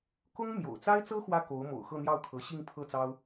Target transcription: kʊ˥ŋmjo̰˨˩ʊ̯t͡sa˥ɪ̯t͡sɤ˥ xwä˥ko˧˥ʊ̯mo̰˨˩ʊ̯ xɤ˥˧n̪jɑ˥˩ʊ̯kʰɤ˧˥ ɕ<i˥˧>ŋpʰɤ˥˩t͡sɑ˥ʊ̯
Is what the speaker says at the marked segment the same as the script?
yes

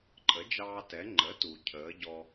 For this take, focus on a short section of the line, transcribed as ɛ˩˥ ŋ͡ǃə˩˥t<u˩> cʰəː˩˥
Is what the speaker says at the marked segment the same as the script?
yes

